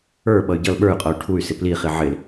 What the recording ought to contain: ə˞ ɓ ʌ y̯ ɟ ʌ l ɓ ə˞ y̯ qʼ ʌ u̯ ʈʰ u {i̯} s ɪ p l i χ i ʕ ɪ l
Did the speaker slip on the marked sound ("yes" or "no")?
yes